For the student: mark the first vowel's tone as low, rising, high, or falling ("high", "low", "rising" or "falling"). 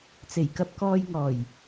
low